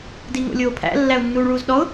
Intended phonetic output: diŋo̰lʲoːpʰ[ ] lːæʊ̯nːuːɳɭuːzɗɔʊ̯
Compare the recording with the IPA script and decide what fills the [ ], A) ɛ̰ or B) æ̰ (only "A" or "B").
B